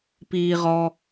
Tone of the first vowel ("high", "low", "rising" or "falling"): high